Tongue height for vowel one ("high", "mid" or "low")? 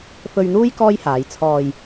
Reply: mid